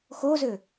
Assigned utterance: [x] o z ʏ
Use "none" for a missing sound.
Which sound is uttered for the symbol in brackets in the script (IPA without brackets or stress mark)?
x